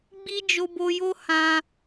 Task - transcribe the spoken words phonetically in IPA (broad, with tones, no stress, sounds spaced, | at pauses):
ɡ͡b i˦ d͡ʒ o˧ b o˧ j o˦ h ã˦